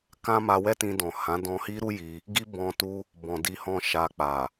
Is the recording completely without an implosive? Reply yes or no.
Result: yes